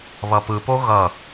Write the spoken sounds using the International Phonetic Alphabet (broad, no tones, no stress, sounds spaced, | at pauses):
β ʌ p ɯ p o ɣ ʌ